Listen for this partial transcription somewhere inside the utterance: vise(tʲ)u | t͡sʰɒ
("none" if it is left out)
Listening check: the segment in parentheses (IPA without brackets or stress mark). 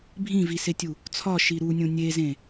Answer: tʲ